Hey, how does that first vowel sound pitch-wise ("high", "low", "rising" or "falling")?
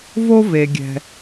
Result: high